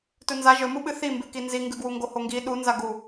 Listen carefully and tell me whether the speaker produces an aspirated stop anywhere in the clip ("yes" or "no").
no